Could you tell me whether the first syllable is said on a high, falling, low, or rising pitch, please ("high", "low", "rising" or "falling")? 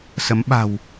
rising